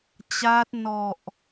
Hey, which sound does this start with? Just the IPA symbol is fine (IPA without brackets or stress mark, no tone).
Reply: t͡ɕ